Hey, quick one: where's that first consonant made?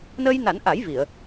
tongue tip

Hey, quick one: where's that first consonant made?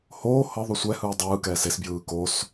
throat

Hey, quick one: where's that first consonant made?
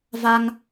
lips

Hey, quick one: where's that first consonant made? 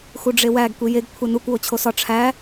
velum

